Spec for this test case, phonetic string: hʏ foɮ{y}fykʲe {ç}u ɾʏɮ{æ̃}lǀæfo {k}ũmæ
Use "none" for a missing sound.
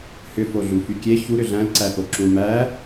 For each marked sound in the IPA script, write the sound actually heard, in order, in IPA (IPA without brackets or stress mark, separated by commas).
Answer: u, ç, æ̃, ǁ